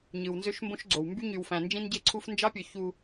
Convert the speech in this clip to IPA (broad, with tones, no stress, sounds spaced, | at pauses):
ɲ ɯ˨ w n z ø˦ ʃ m b õ˦ ʃ ɡ͡ǀ o˨ w m b y˦ ɲ y˨ w f æ̃˨ n d͡ʒ ĩ˦ n ɟ e˦ ǀʰ u˦ f n d͡ʒ ɑ˦ pʲ ø˨ ç u˨